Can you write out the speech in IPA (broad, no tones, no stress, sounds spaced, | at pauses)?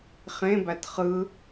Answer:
χ ẽ b æ t χ ɯ